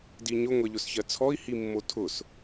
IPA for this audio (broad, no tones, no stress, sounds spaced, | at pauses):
d i ɲ ʊ ŋʷ ɛ ʎ ʊ s ç ɜ t͡sʰ ɔ i̯ h i mː o tʰ ʊ s